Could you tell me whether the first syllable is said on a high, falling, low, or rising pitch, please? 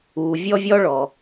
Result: low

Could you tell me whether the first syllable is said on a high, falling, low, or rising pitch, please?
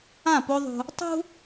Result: falling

